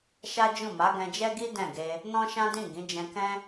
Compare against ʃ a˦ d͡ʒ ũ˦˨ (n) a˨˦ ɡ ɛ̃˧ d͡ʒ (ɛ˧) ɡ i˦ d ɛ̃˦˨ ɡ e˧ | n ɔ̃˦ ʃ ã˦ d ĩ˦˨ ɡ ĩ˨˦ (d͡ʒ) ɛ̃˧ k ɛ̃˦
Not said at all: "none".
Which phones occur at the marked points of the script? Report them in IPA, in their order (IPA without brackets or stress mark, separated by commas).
m, ɛ˦, d͡ʒ